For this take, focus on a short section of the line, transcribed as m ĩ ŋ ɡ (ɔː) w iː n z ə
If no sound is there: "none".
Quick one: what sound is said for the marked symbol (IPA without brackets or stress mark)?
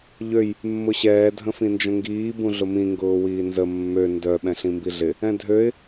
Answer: ʊː